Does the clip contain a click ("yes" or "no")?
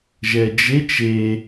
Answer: no